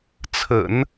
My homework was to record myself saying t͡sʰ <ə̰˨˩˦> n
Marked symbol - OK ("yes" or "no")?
yes